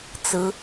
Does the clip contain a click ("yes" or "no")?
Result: no